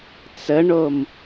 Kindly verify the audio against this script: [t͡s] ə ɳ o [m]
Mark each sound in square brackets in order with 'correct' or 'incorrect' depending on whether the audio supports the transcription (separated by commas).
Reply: correct, correct